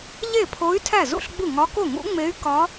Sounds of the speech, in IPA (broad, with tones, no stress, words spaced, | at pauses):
ʎe˥˩pʰo˧˥y̯ tʰæ˥˩zṵ˥˩ɬɡ͡bu˥˩ŋɒ˧˥ ko˥˩ŋṵ˧˥ŋ͡me˧˥y̯ kɒ˧˥